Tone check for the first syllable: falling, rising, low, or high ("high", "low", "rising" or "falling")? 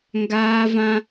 high